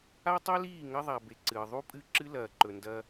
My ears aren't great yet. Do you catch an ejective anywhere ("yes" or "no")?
yes